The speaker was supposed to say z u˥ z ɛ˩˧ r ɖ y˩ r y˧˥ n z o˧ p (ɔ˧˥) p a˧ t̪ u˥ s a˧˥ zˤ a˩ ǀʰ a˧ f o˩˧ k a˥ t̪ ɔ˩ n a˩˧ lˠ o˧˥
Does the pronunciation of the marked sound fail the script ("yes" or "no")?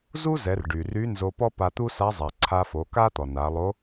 yes